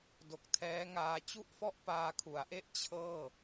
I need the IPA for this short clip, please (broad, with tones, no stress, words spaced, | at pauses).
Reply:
do˨˩k̚tʰɛː˦˥ŋaː˧ t͡ɕu˥˩ʔfɔ˥˩ʔ paː˧kʰu˩˦a̯ʔe˥˩ʔ t͡ɕʰɤː˥˩